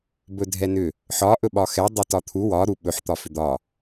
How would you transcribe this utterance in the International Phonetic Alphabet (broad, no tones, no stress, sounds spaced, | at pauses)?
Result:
b ɵ dʱ ɛ n ʏ | ħ ɒ ʔ ɵ ɓ ɒ x ɛ dˤ ʏ t ɒ t̪ʰ u w ɒ ɾ u ɓ ɵ ħ t̪ ɒ f ʏ d̪ ɒ